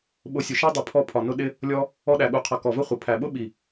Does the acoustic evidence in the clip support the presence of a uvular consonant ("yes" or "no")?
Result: yes